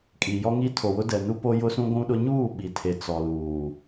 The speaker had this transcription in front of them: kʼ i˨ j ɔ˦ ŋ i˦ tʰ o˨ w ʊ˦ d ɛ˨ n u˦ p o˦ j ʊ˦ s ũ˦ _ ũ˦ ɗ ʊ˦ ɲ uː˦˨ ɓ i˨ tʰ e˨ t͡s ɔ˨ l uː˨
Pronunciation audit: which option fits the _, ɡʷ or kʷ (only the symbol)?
ɡʷ